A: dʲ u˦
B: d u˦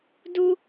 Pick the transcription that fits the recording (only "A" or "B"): B